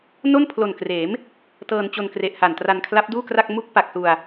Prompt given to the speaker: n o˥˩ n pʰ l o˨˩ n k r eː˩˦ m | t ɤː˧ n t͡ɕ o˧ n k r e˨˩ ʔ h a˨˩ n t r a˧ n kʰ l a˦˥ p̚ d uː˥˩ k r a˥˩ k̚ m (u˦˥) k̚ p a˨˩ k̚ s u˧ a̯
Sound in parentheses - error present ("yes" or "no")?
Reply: no